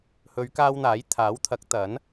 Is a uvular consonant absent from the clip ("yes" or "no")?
yes